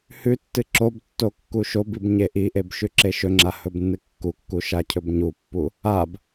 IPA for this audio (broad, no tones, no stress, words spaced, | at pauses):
hʉtːɨ ǁobtːo kːuʃobib ɲeʔiʔeb ʃʉǁeʃɵŋ͡ǁa hɵbnːɨkːukːu ʃacʰɵbɲupːu | ab